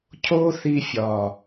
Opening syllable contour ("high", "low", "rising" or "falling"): high